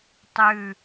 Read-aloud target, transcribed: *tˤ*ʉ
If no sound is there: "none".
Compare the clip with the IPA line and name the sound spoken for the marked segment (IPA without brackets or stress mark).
tˤ